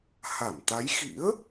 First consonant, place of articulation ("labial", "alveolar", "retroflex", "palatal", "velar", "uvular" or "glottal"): glottal